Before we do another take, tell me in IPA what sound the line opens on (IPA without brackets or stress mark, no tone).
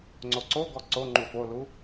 ŋ͡ǀ